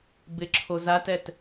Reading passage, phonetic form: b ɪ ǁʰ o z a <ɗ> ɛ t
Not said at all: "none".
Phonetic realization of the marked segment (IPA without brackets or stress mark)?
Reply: t